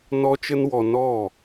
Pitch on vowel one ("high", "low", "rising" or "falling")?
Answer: high